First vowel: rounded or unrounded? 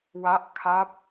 unrounded